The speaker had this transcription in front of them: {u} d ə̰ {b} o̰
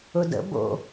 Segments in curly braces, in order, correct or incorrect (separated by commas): incorrect, correct